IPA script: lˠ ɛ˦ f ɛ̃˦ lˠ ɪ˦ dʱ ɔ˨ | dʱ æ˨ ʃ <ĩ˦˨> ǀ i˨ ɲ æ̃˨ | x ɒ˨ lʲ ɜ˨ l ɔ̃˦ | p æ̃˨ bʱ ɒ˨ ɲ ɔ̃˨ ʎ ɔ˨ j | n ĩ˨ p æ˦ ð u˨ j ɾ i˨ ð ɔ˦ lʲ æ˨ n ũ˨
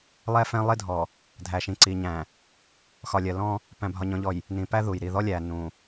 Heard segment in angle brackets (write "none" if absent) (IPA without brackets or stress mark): ĩ˨